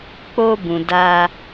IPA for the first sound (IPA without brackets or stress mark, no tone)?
k͡p